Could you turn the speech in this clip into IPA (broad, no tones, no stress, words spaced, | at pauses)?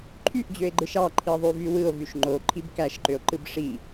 ǃʰyʔd͡ʑøe̯ɡ͡ǃɯʃ ɑ ǃʰiðˤyvywɯo̯ vyʃŋ͡ǃo ǃʰibkæʃǃøo̯ ǃɯbʂi